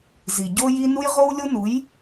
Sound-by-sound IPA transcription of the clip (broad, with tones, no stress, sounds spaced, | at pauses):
z i˩ ɟ o˧ j i˧ n u˥ j ʁ o˥ w lʲ o˥ n u˩˥ j